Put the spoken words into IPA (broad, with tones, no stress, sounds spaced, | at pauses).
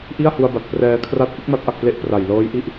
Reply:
ʔ i˥˩ a̯ h u˧ a̯ b a˨˩ t̚ p r ɛː˧ kʰ r a˦˥ t̚ ʔ ɯ˦˥ k̚ m a˦˥ t̚ ʔ a˨˩ k̚ p l e˦˥ ʔ p r a˨˩ j l ɤː˦˥ j ʔ i˥˩ ʔ